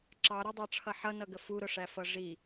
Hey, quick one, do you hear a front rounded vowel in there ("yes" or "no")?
no